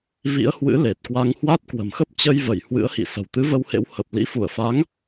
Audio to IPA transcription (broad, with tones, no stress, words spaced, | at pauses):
vḭ˧˥ə̯hwɨ̰˧˥ le˨˩t̚kwa˧ŋhwa˦˥t̚ kwə̤˨˩mxə˦˥p̚ t͡ɕə˧jvə˧˩j hwɨ̰˧˥ə̯hḭ˧˨ sə̤˨˩wt̪ɨ˨˦və˧whḛ˧˥w hə˨˩p̚ lḭ˧˥fu˧˩ə̯fa˨˦ŋ